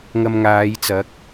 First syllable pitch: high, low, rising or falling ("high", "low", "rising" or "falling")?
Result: low